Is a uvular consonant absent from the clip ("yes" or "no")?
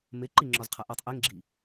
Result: no